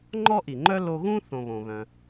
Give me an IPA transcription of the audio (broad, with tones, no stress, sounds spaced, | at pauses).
ŋ͡ǃ ɔ˥ ʔ i˩ ŋ͡ǃ œ˥ l o˧ ɣ ũ˥ θ õ˧ β õ˩ β œ̃˩